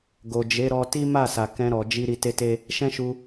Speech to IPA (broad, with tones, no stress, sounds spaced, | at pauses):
ɡ o˨ d͡ʒ e˨˦ ɾ ɔ˧ t i˦ m a˦˨ s a˨ k ɛ̃˧ ɾ ɔ˨ d͡ʒ i˧ ɾ i˧ t e˦ t e˦ | ʃ ɛ̃˦ ʃ u˧